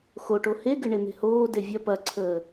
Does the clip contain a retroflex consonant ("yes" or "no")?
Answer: yes